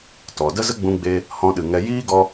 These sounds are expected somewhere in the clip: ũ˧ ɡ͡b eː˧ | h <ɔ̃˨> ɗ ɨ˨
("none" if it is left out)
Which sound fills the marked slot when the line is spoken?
ɔ̃˧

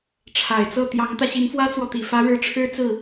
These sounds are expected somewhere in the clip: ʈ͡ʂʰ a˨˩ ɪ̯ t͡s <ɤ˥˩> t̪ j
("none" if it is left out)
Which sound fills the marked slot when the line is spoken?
ɤ˥˩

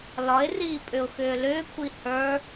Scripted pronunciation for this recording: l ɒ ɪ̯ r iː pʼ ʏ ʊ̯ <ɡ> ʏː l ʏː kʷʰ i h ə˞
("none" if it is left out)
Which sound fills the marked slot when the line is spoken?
x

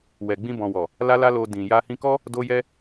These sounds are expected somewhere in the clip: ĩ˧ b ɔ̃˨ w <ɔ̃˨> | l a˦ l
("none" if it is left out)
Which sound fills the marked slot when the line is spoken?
ɔ˨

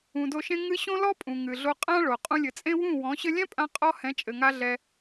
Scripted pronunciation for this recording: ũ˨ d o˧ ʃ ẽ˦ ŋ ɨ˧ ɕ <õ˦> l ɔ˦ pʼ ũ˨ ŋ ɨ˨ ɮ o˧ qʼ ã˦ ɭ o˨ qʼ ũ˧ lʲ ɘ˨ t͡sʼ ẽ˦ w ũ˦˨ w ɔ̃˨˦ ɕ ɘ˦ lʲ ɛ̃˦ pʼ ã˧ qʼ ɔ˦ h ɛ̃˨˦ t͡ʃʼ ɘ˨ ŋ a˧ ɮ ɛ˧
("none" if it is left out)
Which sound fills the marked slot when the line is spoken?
õ˦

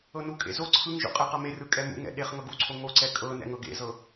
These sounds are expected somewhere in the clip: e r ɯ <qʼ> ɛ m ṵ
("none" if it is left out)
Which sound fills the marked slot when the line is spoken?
kʼ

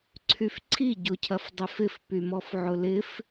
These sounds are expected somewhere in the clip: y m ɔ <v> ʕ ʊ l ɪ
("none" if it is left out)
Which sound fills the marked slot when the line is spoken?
f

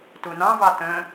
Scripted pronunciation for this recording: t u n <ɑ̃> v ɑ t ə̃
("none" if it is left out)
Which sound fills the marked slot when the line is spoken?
ɑ̃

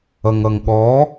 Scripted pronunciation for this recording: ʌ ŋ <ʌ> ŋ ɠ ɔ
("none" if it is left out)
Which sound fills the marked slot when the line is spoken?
ʌ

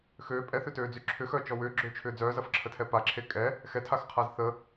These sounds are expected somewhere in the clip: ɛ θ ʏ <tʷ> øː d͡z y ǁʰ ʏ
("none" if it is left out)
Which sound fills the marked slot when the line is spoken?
t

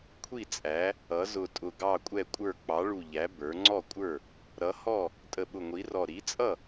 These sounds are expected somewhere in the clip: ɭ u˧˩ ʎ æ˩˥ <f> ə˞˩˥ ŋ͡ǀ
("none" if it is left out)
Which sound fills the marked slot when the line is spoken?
b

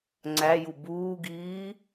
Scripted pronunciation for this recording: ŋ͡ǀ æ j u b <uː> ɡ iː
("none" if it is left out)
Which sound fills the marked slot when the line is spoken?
uː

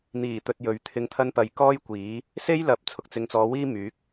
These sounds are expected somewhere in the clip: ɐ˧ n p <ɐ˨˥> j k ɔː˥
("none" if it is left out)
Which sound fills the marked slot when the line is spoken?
ɐ˨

